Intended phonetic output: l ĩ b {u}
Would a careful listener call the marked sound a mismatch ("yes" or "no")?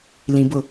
yes